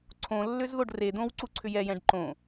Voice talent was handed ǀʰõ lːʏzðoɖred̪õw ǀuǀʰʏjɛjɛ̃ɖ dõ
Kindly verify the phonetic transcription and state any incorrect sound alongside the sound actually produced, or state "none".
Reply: d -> ǃ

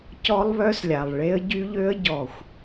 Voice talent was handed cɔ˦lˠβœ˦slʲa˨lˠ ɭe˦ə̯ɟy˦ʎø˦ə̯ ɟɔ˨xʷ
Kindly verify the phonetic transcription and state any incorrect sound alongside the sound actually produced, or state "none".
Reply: none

